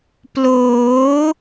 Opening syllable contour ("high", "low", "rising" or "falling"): rising